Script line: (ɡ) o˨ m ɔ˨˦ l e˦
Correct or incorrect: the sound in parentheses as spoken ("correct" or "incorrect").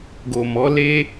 correct